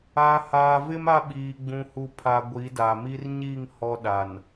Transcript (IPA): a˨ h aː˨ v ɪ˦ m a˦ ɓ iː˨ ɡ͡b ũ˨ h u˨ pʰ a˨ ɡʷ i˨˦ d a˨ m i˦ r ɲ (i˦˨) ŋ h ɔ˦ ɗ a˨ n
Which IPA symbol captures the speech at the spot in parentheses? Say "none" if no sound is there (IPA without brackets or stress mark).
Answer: i˦˨